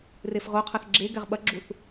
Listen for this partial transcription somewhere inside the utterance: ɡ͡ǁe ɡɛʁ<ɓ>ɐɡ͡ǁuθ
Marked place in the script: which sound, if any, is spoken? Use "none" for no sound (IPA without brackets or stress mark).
ɓ